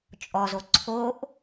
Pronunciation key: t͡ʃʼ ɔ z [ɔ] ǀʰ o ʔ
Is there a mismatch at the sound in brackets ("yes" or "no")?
yes